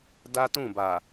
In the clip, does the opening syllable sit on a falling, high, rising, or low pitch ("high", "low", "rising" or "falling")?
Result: high